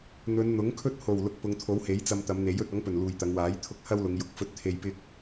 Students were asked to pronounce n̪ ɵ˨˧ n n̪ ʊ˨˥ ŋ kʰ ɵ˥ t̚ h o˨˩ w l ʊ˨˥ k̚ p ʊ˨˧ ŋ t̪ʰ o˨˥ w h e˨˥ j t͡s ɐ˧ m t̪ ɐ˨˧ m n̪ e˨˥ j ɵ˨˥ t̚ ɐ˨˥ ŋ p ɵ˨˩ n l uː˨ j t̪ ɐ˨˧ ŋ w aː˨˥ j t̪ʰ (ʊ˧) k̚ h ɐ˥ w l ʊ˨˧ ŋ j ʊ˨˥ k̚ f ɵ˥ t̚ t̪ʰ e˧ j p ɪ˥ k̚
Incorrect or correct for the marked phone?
correct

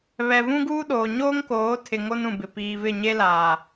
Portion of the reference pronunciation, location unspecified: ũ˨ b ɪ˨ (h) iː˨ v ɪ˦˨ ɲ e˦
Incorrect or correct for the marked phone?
incorrect: p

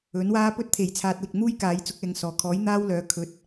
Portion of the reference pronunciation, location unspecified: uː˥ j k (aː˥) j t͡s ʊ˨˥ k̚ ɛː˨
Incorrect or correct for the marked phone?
incorrect: aː˨˥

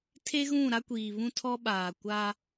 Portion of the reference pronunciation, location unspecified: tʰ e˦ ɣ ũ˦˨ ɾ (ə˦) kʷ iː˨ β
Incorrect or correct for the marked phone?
incorrect: a˦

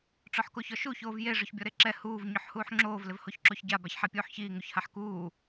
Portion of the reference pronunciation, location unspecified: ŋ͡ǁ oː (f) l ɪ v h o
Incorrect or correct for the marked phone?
incorrect: v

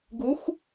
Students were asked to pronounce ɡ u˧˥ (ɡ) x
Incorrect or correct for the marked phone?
incorrect: none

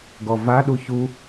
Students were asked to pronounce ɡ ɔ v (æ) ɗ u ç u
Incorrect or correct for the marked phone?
incorrect: a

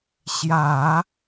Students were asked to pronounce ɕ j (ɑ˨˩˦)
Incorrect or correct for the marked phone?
incorrect: ä˨˩˦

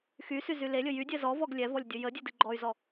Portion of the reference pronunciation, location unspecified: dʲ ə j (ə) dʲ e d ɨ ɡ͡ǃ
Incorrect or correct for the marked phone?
correct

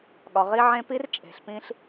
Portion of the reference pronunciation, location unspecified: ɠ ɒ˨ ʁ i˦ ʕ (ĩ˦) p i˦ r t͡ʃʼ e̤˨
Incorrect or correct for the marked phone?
incorrect: ẽ˦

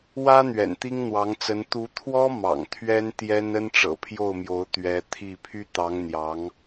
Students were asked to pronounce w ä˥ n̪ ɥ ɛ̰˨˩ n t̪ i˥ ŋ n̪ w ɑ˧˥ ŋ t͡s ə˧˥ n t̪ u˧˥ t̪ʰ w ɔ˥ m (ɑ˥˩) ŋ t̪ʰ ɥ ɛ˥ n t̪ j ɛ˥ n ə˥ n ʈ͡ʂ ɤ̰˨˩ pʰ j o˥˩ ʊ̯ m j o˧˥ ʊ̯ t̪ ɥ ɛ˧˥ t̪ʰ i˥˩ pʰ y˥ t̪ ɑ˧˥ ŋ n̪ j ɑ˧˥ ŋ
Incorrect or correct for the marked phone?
incorrect: ɑ̰˨˩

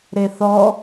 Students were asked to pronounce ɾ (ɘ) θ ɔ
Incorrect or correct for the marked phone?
incorrect: e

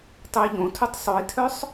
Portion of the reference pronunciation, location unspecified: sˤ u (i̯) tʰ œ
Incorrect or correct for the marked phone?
correct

